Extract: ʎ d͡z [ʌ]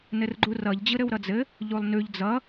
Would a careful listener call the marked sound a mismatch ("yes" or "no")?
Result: no